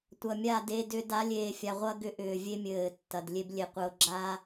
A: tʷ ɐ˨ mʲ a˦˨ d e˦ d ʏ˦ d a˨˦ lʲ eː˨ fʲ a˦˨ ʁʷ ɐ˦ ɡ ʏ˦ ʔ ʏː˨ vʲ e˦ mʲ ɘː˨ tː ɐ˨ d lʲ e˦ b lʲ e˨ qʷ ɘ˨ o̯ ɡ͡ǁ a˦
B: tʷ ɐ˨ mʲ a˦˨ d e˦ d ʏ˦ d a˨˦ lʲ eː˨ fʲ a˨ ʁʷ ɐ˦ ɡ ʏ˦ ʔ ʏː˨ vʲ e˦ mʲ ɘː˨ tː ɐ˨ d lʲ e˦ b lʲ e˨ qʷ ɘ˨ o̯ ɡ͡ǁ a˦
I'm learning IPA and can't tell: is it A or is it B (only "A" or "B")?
B